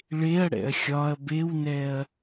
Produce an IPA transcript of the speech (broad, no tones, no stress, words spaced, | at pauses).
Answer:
ɭeɐ̯ɽɛ̰ɐ̯ xʲɒɐ̯ bewnɛɐ̯